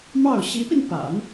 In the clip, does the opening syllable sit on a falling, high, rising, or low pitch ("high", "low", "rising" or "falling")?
falling